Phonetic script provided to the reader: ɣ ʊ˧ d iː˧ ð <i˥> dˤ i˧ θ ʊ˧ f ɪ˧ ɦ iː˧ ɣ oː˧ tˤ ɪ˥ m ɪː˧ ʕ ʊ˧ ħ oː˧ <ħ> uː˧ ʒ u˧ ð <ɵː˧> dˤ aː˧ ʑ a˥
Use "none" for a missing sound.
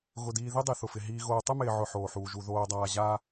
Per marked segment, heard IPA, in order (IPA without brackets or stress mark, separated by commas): i˥, ħ, oː˧